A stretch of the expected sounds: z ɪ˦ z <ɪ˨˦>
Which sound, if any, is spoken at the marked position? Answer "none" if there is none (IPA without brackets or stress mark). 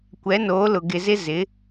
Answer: ɪ˨˦